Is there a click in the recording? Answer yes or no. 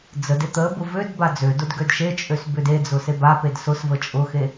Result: no